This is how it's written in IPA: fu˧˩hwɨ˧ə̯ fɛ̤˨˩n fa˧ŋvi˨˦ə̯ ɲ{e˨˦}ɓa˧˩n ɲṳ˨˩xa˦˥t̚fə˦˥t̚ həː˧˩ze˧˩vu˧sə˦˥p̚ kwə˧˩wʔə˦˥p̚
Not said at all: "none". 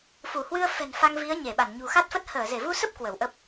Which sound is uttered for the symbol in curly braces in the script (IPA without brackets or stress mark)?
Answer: e˧˩